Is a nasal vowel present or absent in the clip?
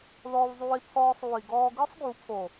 absent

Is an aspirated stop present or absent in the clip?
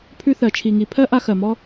present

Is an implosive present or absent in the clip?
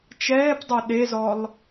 present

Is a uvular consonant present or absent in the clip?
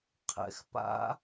present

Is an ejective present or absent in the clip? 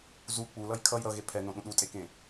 present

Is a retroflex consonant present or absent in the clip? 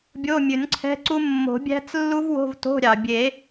absent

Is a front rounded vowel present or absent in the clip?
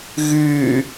present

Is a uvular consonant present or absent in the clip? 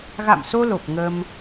absent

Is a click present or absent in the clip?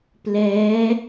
absent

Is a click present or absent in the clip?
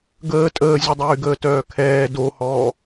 absent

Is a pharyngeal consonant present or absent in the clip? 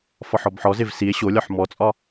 present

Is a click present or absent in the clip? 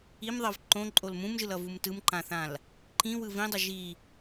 present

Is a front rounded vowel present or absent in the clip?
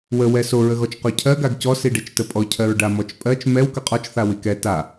absent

